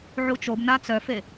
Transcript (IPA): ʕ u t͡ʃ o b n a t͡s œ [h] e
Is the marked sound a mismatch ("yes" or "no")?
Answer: yes